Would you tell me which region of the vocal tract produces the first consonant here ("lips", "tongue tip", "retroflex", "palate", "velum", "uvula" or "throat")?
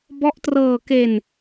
lips